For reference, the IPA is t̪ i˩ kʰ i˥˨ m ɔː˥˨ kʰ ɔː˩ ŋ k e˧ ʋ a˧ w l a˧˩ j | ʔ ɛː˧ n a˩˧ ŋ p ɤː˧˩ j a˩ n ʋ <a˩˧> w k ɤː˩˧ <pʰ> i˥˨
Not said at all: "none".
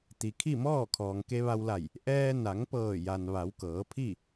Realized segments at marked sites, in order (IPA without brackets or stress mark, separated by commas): a˩˧, pʰ